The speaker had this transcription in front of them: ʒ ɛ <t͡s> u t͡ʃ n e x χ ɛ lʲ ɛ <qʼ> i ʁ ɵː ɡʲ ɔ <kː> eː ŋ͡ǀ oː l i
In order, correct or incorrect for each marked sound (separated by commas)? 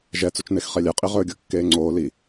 correct, correct, correct